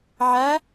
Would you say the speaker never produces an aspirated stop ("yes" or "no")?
yes